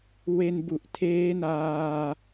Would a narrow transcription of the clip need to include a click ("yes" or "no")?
no